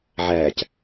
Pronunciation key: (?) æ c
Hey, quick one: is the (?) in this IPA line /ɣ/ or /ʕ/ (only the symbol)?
ʕ